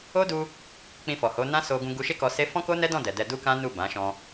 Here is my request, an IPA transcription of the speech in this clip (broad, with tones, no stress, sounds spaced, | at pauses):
o˦ d u˧ | k͡p ĩ˧ f ɔ˨ h o˨˦ n ã˦ s o˧ ɡ ũ˧ ɡ u˧ ʃ e˦ k ɔ˧ s e˦ f ɔ̃˦ k o˦ n ɛ˦ d ɔ̃˦˨ d ɛ˨ d ɛ˧ d u˦ k ã˦ n u˦˨ b ã˨˦ ʃ ɔ̃˧